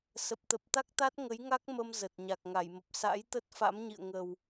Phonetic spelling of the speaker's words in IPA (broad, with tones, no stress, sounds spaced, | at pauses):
s ə˨˩ p̚ t̪ ə˨˩ p̚ t̪ a˦˥ k̚ t̪ a˦˥ t̚ ŋ ə˨˦ j ŋ a˦˥ k̚ m ə˧ m z ə˨˩ t̚ ɲ a˨˩ k̚ ŋ a˧˩ j m ə˨˩ p̚ s a̰˧˥ j t̪ ə˦˥ t̚ f a̰˧˥ m ɲ ḭ˧˨ ə̯ ŋ ə˨˩ w